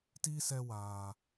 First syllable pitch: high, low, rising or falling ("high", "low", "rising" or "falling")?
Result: high